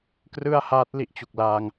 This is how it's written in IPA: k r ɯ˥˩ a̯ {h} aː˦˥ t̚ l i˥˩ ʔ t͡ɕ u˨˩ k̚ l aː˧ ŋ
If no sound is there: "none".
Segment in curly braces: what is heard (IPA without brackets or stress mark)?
h